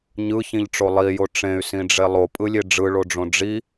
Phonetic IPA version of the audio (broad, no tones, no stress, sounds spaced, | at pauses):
ɲ ɯ ç ĩ ʎ ʈ͡ʂ o lˠ i j o ʈ͡ʂ ẽ y̯ s ĩ ɖ͡ʐ e lˠ o pʼ ɯ lʲ e ɖ͡ʐ ɯ ɭ o ɖ͡ʐ õ ɖ͡ʐ i